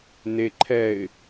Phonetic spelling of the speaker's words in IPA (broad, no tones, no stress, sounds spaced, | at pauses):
n e ǃʰ ɛ ɪ̯